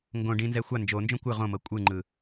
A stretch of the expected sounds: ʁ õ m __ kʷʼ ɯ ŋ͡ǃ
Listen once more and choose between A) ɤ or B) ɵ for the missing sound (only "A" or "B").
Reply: A